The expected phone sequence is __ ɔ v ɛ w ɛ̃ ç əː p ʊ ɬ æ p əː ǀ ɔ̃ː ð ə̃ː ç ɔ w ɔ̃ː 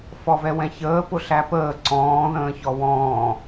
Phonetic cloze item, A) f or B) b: A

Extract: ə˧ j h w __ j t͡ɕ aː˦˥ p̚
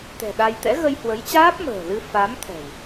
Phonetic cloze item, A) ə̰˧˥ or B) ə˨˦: B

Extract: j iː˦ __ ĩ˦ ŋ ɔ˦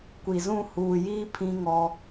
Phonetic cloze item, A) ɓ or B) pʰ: B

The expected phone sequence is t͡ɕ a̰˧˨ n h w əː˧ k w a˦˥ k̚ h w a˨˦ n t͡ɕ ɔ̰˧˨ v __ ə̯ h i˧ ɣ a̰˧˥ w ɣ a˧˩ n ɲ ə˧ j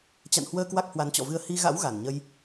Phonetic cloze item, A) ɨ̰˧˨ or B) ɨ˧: B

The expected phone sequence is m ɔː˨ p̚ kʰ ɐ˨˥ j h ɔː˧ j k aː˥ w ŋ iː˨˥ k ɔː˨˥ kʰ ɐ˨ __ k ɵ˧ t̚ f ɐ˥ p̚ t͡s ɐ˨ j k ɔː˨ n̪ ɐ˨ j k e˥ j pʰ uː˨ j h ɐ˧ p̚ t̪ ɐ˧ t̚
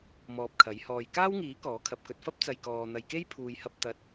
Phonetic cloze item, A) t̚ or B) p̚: B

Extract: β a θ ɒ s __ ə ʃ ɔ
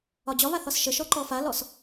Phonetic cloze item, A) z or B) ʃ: B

